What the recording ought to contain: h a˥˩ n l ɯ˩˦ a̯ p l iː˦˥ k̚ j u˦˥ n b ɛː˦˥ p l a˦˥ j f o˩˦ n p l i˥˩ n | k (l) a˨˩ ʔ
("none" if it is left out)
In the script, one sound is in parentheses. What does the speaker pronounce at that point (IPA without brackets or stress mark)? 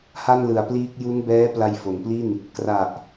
r